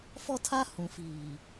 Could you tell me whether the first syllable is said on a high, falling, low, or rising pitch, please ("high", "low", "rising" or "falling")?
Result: high